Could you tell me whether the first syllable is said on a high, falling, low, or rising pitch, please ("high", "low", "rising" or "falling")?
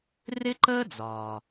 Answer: high